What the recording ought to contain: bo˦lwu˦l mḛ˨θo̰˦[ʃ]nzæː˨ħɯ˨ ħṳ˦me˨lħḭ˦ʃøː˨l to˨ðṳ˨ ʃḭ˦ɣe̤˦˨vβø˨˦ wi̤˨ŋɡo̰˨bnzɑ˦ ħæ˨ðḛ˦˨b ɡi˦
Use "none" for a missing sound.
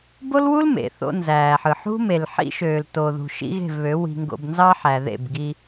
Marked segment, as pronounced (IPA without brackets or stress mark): none